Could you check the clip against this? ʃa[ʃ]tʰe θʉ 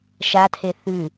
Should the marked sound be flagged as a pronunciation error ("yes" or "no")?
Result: yes